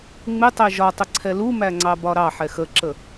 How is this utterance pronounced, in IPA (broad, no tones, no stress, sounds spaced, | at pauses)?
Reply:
ŋ͡m ɪ tˤ ɛ ʒ ɒ tˤ ɪ ǀʰ ɛ l u m æ ŋ͡ǀ ɑ b ɒ ɾ ɑ ħ ɛ x ə ǁ ə